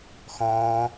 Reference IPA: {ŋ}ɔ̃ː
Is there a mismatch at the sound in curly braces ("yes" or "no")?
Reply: yes